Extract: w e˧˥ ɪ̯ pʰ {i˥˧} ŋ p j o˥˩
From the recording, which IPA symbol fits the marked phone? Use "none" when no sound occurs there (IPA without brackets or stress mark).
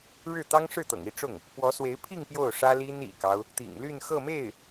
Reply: i˥˧